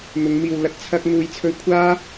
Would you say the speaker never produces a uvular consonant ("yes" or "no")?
yes